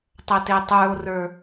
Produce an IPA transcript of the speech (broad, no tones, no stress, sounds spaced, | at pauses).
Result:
tˤ ɐ t e tˤ ə˞ o̯ r ə˞